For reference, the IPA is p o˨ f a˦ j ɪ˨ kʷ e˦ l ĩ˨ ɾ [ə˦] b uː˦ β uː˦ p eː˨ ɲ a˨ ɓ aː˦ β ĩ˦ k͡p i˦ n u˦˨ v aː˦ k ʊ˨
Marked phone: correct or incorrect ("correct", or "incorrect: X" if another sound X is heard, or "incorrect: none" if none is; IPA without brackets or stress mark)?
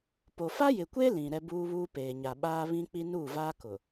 incorrect: ɛ˦